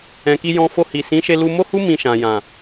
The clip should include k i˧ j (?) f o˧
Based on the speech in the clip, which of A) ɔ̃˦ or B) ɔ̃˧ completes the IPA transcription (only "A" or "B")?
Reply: B